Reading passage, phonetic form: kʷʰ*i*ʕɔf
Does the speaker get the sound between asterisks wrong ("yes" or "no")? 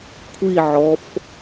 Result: no